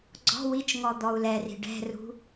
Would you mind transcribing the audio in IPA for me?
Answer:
ɡ͡ǀ ɔ̤ w i t͡ʃ ŋ ɔ d̪ ɔ u̯ l ɛ r i̤ ɖ ɛ̤ r ṳ

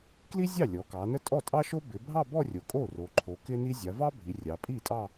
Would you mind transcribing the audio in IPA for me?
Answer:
k l i˥ zʲ ɑ˥˩ lʲ ɔ˩˧ k ɑ˩˧ n ə˥ tʼ ɔ˥˩ tʼ ɑ˥ ʃ o˥ b ɪ˩˧ bʱ ɑ˥˧ b ɔ˥˧ rʲ o˩ kʼ o˥˩ r o˩˧ ǃʰ o˩˧ k ɪ˥ n i˥ zʲ a˩˧ v ɑ˥ bʱ i˩˧ rʲ ɑ˩˧ pʼ i˥˩ tʼ ɑ˥˧

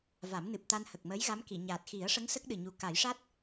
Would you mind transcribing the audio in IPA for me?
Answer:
v a˨˩˦ m n ɨ˨˩ p̚ t̪ a˧ n h ə˨˩ k̚ m əː˧˥ j ɣ a˧˥ m k i˨˩˨ ɲ aː˨˩ t̚ x i˨˩˦ ə̯ ʂ ə˧˥ ŋ s ə˦˥ k̚ ɗ ɨ˨˩ ɲ u˨˩ k a˨˩˦ j ʂ a˦˥ t̚

